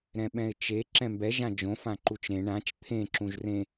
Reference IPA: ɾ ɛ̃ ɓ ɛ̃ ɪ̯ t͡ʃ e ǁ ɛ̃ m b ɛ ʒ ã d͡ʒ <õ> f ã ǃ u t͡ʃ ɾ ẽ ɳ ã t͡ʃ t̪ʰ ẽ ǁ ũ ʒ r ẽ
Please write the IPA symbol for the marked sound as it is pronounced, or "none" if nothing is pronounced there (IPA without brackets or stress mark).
õ